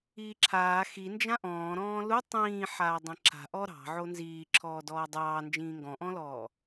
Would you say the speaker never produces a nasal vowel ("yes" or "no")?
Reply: no